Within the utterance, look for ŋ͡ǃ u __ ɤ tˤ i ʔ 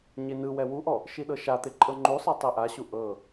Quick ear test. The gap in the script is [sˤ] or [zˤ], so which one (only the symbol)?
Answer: sˤ